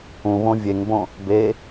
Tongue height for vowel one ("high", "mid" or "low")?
high